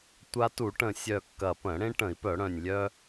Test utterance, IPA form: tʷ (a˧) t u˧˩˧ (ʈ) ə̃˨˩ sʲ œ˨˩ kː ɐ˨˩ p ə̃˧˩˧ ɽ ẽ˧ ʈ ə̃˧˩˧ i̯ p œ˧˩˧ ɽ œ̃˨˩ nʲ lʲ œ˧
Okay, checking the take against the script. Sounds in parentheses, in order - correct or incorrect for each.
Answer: correct, correct

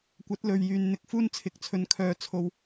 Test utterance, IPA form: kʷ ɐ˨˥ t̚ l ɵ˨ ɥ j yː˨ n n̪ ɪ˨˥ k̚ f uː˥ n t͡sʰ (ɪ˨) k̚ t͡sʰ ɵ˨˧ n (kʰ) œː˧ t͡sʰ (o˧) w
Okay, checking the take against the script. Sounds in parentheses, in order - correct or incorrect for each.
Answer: correct, correct, correct

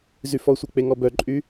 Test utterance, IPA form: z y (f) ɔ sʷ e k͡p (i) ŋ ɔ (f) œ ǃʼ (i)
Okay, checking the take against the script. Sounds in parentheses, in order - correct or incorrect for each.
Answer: correct, incorrect: e, incorrect: b, incorrect: y

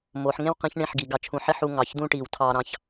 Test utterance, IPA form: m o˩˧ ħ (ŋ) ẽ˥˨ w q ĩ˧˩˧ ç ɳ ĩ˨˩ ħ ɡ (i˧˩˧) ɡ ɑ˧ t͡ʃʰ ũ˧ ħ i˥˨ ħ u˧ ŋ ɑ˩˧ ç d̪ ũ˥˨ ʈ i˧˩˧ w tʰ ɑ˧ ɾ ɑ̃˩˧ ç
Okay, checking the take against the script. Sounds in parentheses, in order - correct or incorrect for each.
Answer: correct, incorrect: i˩˧

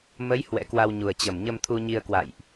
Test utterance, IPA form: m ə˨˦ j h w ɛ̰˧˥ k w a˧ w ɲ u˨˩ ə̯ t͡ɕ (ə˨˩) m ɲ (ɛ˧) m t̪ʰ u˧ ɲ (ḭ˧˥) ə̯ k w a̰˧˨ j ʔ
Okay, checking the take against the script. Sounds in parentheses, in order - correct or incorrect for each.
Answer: correct, incorrect: ə˧, incorrect: i˧

